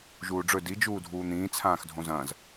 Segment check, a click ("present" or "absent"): absent